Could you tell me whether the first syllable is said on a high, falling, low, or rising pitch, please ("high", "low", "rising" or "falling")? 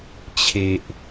low